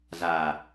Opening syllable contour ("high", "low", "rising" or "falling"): low